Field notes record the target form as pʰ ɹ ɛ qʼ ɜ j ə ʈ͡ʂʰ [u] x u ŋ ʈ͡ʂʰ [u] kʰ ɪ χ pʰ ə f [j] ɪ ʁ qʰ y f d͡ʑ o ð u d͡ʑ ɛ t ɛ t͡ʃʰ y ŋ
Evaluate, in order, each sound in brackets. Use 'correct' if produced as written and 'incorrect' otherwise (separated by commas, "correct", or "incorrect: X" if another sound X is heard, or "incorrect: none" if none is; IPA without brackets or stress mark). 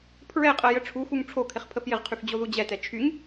correct, incorrect: o, correct